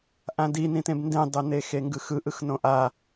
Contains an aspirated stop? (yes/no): no